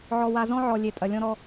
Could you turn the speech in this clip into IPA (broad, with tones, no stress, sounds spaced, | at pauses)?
ʕ ɔ˨ w a˨ z ɔ̃˦ ʕ ɔ˨ lʲ e˨ tʼ ɐ˨ lʲ ɔ̃˦ ɾ ɔ˦